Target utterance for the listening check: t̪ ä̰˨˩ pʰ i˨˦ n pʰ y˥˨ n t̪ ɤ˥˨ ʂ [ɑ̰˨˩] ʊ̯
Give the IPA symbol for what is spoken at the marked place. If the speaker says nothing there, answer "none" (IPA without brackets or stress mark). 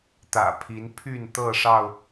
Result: ɑ˥˨